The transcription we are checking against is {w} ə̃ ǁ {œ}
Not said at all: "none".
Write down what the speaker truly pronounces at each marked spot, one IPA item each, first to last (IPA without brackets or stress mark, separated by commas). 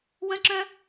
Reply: w, œ̃